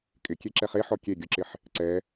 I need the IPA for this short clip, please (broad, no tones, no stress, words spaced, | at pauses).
kʼɪkʲe ǁɛχeħɔ kʲe ɡʲʊǁɪħ | ǀɛ